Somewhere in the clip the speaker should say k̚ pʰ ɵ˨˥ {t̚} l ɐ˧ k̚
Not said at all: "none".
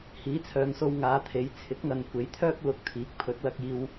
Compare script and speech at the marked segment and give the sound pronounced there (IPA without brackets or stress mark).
t̚